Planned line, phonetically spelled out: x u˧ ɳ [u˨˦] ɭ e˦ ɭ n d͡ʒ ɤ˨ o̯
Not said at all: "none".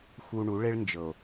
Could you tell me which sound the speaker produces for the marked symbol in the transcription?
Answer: u˨˦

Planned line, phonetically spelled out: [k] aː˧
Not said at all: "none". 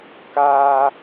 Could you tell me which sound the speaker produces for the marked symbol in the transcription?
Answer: k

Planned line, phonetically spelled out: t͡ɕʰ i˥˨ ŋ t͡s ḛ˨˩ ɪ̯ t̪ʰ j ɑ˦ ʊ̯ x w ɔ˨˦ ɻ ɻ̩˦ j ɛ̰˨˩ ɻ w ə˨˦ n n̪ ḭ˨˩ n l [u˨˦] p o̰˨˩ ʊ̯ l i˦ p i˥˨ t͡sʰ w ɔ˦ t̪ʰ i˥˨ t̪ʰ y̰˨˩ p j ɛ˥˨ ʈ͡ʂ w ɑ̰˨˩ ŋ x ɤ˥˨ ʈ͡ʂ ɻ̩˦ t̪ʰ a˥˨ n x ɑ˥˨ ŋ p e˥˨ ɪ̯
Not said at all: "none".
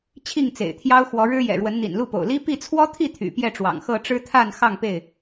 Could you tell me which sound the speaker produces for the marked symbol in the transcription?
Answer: u˥˨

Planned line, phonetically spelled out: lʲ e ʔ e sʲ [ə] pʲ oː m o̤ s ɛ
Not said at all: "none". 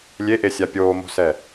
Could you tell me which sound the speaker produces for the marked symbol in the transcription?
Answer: a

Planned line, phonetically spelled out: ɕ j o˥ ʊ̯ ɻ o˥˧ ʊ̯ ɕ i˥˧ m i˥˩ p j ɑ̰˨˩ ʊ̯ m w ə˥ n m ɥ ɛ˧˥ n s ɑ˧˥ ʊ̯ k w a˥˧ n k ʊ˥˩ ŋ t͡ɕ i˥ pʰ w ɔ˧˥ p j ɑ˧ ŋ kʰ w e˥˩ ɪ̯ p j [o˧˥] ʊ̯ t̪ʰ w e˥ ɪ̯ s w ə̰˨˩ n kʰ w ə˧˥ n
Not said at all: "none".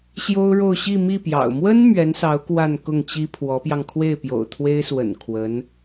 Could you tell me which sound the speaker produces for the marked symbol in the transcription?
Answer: o̰˨˩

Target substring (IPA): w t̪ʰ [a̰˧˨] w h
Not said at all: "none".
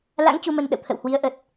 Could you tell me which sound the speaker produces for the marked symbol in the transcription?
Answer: ə̰˧˨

